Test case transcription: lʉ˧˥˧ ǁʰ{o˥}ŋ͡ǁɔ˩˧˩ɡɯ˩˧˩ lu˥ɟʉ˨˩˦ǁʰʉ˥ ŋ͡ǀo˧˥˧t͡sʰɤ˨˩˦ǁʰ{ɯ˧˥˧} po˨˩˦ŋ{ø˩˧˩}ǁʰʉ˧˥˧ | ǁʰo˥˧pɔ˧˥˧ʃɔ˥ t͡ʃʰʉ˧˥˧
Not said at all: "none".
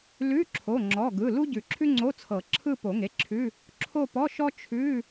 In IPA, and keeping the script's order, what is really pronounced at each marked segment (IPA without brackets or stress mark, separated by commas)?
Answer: o˩˧˩, ɯ˥˧, e˩˧˩